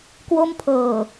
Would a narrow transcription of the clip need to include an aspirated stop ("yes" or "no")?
yes